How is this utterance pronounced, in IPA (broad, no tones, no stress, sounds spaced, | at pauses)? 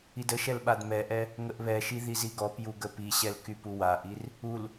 i d ə ʃ ɛ l ɓ a d m ɛ ʔ ɛ | ŋ ə ʔ β ɛ ʃ i ð i z i ɡ ɔ p j u ɡ ə p i ɕ ɛ l k y p u w a ʔ i r | u l